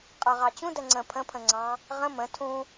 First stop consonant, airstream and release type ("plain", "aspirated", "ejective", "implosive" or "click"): ejective